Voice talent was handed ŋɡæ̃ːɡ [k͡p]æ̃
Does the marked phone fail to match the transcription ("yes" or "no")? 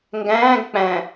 no